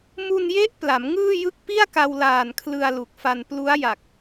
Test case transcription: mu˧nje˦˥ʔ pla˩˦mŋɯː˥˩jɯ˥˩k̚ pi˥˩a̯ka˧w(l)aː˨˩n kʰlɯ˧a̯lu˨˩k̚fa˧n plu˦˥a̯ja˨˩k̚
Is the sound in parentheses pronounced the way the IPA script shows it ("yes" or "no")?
yes